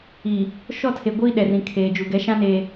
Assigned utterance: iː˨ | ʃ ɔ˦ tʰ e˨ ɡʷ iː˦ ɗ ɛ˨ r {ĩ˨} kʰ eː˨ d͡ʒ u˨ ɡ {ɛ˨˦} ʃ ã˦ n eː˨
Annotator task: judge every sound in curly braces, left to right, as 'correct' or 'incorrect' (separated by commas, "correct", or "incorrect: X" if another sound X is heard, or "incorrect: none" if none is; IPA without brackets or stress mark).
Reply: correct, correct